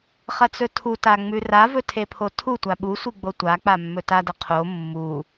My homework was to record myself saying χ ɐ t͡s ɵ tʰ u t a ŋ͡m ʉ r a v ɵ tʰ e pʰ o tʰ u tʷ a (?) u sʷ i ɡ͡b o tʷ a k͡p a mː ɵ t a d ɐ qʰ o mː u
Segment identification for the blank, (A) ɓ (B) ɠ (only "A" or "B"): A